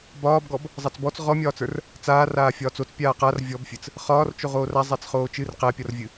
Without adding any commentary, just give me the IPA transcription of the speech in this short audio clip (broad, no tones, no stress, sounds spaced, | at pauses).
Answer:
b ɒː b ɡ ɔ b | zˤ a t͡s b ɔ t͡s ʁ ɔ mʲ ɒː t͡s ə˞ r | t͡s aː r aː fʲ ɒː t͡s o t͡s pʲ aː q a r vʲ ɔ b fʲ ɨ t͡s | χ ɒː r t͡ʃ o ʁ oː r a zˤ æ t͡s χ oː t͡ʃ ɨ r q æ pʲ ɒ r vʲ ɨ